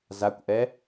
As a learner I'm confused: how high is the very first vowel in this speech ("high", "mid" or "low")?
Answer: low